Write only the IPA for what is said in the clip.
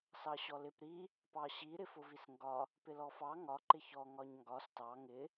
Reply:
s ɑ ɕ ɔ l ɪ p ɾ i | p ɑ ɕ i ɾ ɪ f ʊ v i s ŋ ɡ ɒ | p ɪ l ɔ f ɑ ŋ ɒ ǃ ɪ ç ɔ ŋ ɒ ɲ ŋ ɡ ɒ s t ɑ ŋ ɪ

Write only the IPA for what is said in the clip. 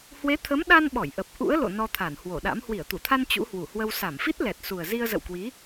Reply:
h w e˨˦ t̪ʰ ə˨˦ m ɗ a˧ n ɓ ɔ˧˩ j ʔ ə˨˩ p̚ ʔ ṵ˧˥ ə̯ l o̰˧˨ n ɔ˧ t̪ʰ a˧˩ n h w o˧˩ ɗ a̰˧˥ m h w i˧˩ ə̯ t̪ u˧˩ t̪ʰ a˧ n t͡ɕ ṵ˧˥ h w u˧˩ h w ə˧ w s a˧˩ m f i˦˥ t̚ l ɛ˨˩ t̚ s u˨˩ ə̯ z i˧ ə̯ z ə̰˧˨ w k w i˨˦

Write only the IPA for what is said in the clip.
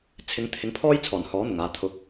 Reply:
t͡sʰ ɪ˨˧ ŋ t̪ʰ ɪ˨˥ ŋ pʰ ɔː˥ j t͡sʰ ɔː˨˩ n h ɔː˨˥ n̪ ʊ˨˩ ŋ aː˨ t̪ʰ ʊ˨˥ k̚

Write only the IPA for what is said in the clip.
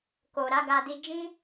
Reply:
k o˨ ɾ a˨˦ ɡ a˧ d i˧ d͡ʒ ĩ˦

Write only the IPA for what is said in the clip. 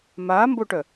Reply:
m a m b o ʈ œ

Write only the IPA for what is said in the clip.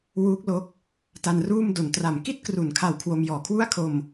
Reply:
w uː˦˥ k̚ l o˦˥ k̚ | t a˧ n r uː˥˩ m d o˨˩ n t r a˩˦ m k i˥˩ t̚ k r u˩˦ n kʰ a˨˩ w kʰ w o˧ m j ɔː˨˩ kʰ w u˥˩ a̯ kʰ o˧ m

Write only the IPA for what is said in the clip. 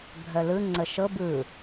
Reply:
bʱ œ l ɯ ŋ͡ǀ ə ʃ ɤ b ɯ

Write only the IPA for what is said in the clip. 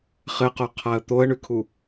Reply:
χ ɘ q o qʰ a ə̯ t̪ o ə̯ ɳ ʉ kʰ u

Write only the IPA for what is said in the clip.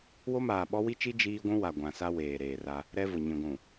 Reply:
w o˦ m aː˨ ɓ ɔ˦ w i˦ t͡ʃ i˦ d͡ʒ iː˦ ɡʷ ũ˦ w a˨ ɡʷ ã˨ s a˦ w eː˨ ɾ eː˨ r a˦ | ɾ ɛ˦ v ʊ˨ ɲ ĩ˨ ɡʷ ũ˨

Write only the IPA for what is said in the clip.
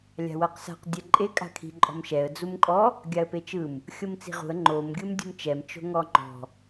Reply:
lʲ a̤ w ɤ q s a̤ q dʲ ɛ ǃʼ e kʼ a̤ kʰ i̤ ǃʼ ɔ̤ m ʃ ɛ ə̯ d͡z u m kʼ ɔ | ɡʲ a ə̯ p e t͡ʃ ɯ m | xʲ ɤ m t͡s i̤ ʁ ṳ ə̯ ŋ͡ǃ o m ɡʲ ɯ m dʲ ṳ m t͡ʃ ɛ m t͡ʃ o̤ ŋ ɔ ŋ͡ǃ ɔ̤

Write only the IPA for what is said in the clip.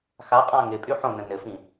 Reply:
x a qʼ ã ŋ ɪ pʼ y ħ õ n ə̃ n ɘ f ĩ

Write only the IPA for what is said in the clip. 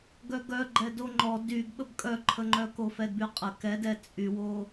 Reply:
ɡ œ ɡ œ ɡ͡ǃ ɛ d o ŋ͡ǃ ɔ d y ɡ ɓ ə b kʼ œ ǃʰ ə ŋ͡ǃ œ k o f ɛ d b y qʼ ə k ɛ d ɛ t͡sʼ y w o

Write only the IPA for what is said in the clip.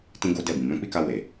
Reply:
t ĩ˦ ɡ o˦ d ɛ˦˨ b ĩ˨ m ɛ̃˧ k͡p i˦ k a˧ w e˨

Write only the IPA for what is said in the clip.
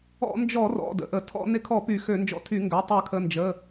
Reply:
ɔ̰˧˩˧ n d͡ʒ ɔ˧˩˧ r ɔ̰˩˧˩ d ə̰˩˧˩ ʔ ə˧˩˧ tʰ ɔ̰˧˩˧ n ɪ˧˩˧ kʰ ɔ˧˩˧ p y˧˩˧ x ø˧˩˧ n d͡ʒ ɔ̰˧˩˧ tʰ y˧˩˧ ŋ ɡ œ˩˧˩ tˤ ø˧˩˧ kʰ ə˩˧˩ n d͡ʒ ə˩˧˩

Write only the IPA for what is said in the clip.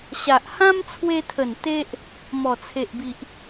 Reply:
ɕ a˨ ʔ h ã˦ m t͡sʰ w e˧ t̪ʰ ə˨˩ n t̪ e˦ ʔ | m ɔ˨˩ t͡sʰ e˨ ʔ b i˨ ʔ

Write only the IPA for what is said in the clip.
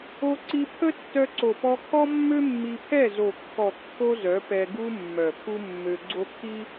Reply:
o˧ ǀ i˧ pʰ ə˦ tː œ˧ ǀ o˨ p ɔ˧ kʰ ɔ˦ mː ø˦ mː i˧ pʰ ɛ˦˨ z o˨ kː ɔ˨ kː o˧ z œ˨˦ p ɛ˧ ɡ u˦ mː œ˨ pʰ u˦ mː ø˧ ɡ͡ǀ o˦ kʰ i˦

